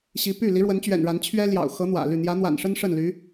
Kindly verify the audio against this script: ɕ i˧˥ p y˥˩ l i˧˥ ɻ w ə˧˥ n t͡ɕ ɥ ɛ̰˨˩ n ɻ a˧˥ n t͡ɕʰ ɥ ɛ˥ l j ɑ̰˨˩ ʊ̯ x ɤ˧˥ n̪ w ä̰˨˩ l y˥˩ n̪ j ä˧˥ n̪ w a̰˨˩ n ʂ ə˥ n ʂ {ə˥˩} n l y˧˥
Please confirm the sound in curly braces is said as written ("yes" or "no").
yes